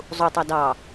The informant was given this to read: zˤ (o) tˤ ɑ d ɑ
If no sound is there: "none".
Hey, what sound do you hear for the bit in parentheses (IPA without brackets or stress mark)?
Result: u